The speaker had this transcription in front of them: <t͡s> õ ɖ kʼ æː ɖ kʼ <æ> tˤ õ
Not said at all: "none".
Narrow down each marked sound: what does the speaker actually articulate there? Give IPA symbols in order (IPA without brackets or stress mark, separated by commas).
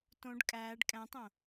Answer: t, æ̃